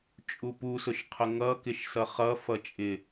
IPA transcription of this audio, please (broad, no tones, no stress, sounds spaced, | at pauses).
t͡ʃʼ u p u s ʊ ʃ qʰ ʊ ŋ ʌ k ɪ ʃ s ʌ χ ʌ f ʌ t͡ʃʼ ɪ